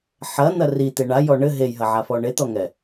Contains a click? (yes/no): no